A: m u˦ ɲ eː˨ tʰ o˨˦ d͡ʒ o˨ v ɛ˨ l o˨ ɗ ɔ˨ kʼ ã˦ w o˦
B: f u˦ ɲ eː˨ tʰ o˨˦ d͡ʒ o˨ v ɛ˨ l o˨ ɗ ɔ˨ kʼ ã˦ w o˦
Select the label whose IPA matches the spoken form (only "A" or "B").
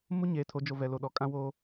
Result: A